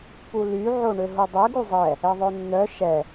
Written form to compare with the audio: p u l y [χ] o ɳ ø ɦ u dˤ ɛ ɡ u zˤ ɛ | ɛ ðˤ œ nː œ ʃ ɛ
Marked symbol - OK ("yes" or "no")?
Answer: no